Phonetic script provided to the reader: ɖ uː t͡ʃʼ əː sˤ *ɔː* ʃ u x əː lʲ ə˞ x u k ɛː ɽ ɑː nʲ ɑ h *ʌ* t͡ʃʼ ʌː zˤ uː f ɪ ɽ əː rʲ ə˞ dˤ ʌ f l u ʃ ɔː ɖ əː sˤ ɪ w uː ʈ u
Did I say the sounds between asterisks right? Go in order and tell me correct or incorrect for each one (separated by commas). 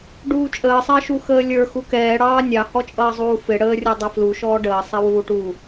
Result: incorrect, incorrect